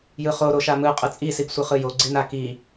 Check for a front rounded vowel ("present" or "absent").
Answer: absent